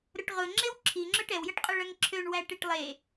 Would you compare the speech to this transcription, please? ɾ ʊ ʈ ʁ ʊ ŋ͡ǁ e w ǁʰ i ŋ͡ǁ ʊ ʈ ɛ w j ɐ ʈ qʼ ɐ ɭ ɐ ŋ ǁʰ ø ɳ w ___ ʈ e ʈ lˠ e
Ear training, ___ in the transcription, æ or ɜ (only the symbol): æ